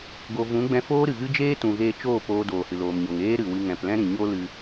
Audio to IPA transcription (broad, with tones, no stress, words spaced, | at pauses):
ɡo˨vũ˨˦ ɡ͡bɛ̃˧foː˦ɾɨ˨ɣɨ˦ d͡ʒeː˦tũ˨ɣeː˧ t͡ʃoː˦˨poː˧ doː˨hɨ˨loː˨mɲo˨ŋ eː˦ɾɨ˨wɨ˧ ŋɛ̃˨plɛ̃˦ɾĩ˨ ɲo˦lɨ˧